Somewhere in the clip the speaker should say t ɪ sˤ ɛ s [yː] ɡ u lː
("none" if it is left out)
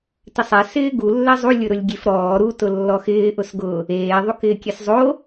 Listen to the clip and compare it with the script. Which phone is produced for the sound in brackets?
ɪː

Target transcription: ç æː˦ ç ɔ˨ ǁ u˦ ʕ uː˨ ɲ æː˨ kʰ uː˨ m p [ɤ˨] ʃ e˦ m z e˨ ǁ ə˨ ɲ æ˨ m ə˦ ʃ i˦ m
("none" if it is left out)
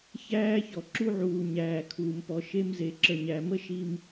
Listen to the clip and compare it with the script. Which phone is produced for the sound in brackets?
ɔ˨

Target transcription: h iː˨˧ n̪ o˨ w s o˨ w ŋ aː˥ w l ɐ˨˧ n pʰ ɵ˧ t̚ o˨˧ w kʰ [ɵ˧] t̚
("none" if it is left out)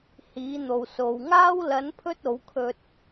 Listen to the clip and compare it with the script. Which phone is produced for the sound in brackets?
ɵ˧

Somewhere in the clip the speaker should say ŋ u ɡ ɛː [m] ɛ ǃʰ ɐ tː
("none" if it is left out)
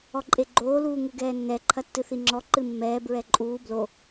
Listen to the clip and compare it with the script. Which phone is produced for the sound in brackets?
nː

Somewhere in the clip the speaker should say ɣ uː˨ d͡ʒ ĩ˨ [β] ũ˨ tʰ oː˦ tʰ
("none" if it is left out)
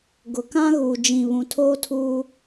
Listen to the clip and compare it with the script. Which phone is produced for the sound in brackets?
β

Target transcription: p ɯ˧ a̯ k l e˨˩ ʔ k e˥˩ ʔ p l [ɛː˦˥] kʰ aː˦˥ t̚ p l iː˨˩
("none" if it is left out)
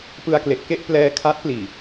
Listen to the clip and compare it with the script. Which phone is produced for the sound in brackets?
ɛː˧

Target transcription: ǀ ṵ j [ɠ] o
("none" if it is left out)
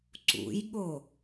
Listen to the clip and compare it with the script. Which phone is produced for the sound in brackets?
ɠ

